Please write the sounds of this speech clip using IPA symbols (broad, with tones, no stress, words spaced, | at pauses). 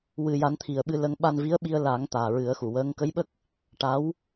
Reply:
wɨ˨˩ja˨˩˦n t̪ʰi˨˩ə̯ɓɨ˧lə˧ŋ ɓa˧nvi˧˥ə̯ɓi˧ə̯ la˨˩˦ŋ t̪aː˨˩ɹɨ˨˩˦ə̯xu˨˩˨ wəː˧˥ŋ kə˧˥jɓə˦˥k̚ | ʈa˧˥w